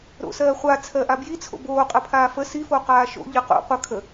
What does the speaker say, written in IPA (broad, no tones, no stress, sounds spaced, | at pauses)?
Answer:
ɾ o̰ s ɜː χʷ a t͡sʰ ɜ ʔ a b j i t͡sʰ o̰ b oː qʼ ə pʰ aː f ə s i f o q aː ʃ o̰ ʎ ɯ q o̰ qʷ ə kʰ ə